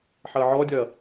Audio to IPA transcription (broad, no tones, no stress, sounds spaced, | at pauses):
ħ ɐː ʕ ɔː dʲ ɐː